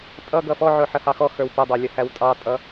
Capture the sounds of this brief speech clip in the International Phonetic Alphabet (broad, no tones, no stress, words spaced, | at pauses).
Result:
tʼʌɡʌ fɔʕʊ ħəhɑxɔxə˞w pædˤɑ lʲʌhæwtʼɑtʼʌ